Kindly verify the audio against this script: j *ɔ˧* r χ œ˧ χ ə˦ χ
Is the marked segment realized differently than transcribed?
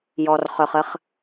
no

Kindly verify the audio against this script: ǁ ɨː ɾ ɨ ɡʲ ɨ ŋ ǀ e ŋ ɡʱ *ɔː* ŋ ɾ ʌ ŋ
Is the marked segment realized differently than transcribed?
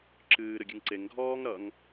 no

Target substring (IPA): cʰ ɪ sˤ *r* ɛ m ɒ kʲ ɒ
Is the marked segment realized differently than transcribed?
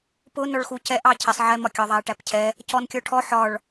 yes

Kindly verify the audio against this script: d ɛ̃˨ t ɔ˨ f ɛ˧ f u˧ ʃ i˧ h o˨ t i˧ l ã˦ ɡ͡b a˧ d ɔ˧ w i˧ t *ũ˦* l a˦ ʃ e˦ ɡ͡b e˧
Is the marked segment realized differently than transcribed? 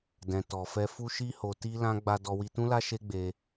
no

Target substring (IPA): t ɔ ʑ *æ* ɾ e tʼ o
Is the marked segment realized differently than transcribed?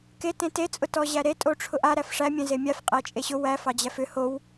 no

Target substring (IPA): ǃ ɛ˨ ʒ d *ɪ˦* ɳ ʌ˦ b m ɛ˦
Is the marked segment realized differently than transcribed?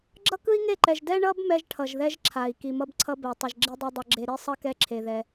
yes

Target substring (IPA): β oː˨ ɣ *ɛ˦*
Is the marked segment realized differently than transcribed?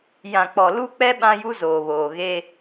yes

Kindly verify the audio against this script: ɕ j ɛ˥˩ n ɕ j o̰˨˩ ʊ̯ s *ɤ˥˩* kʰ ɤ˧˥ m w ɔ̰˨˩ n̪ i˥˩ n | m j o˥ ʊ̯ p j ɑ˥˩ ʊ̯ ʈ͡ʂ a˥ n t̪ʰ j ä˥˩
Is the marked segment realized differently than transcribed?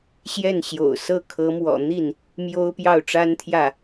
no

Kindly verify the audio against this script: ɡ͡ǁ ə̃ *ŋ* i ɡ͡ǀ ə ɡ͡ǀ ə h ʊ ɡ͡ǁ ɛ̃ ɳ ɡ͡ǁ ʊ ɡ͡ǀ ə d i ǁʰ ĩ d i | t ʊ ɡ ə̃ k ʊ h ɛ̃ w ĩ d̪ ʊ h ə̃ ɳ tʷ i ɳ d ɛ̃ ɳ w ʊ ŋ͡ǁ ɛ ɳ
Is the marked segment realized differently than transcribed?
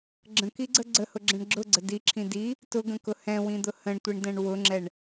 yes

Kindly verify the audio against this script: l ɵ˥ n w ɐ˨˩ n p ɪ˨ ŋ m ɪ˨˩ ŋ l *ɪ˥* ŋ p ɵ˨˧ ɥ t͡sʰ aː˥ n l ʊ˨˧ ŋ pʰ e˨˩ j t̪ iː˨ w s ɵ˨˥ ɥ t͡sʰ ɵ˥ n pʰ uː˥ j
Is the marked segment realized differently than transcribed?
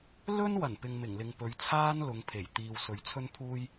yes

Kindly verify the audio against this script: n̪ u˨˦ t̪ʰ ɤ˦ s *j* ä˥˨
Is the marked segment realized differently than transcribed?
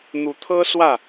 yes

